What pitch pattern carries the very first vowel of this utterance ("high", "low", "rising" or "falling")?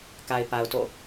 low